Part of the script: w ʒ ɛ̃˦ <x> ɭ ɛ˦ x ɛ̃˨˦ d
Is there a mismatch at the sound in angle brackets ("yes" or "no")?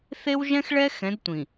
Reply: no